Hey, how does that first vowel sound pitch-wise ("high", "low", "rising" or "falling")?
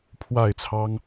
falling